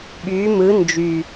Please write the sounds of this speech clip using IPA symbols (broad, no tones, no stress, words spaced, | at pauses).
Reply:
ɓy mɯ nd͡ʒy